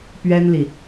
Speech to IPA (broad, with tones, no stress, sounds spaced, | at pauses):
p ɥ ɛ˥ n l i˨